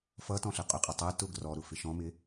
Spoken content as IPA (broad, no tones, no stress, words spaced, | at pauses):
fʌ tɔ̃ɬɜqʼʊqʼʌ tˤɜ tʊɡ rɔɾʊ fɪʃɔ̃mɪ